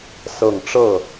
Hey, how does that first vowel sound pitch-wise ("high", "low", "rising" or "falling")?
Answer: low